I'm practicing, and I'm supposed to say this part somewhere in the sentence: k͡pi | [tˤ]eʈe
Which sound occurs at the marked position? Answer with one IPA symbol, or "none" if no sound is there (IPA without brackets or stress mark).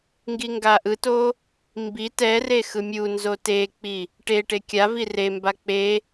ʈ